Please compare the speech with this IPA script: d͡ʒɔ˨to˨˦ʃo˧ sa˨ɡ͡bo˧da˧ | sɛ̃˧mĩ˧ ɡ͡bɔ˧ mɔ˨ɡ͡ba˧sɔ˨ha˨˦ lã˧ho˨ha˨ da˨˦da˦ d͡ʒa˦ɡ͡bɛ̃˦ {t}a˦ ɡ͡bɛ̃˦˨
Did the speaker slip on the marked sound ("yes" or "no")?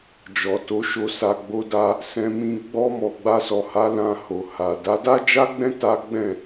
no